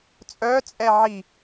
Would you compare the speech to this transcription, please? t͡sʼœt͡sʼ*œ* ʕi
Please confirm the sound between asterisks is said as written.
no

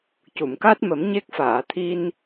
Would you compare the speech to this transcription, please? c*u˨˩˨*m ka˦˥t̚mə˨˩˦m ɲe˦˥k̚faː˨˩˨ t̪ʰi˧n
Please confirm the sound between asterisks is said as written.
yes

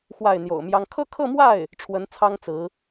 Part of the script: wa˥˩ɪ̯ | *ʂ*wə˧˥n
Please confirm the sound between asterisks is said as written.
no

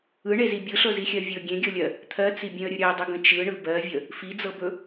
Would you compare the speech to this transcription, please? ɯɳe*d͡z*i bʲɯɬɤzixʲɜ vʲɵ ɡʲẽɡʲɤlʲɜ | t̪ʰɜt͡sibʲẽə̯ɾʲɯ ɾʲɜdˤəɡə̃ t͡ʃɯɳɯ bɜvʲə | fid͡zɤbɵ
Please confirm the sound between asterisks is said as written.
no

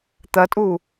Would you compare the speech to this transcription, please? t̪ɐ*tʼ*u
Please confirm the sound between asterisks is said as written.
yes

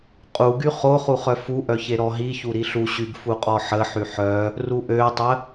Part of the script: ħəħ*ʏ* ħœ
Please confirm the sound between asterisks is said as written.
no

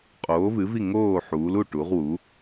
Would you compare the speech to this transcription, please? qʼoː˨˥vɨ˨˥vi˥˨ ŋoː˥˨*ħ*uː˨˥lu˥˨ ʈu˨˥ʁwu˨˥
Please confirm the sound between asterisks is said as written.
yes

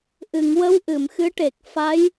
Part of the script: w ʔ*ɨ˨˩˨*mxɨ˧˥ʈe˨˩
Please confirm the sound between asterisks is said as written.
yes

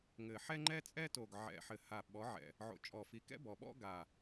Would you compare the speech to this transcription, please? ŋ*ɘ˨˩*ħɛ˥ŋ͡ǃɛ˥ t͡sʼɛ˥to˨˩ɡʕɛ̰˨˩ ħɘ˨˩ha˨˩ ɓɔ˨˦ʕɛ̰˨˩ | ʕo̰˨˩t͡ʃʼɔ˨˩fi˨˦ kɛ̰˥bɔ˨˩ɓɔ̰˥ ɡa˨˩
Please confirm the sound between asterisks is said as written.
yes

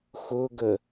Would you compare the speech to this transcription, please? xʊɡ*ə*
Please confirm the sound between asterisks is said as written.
yes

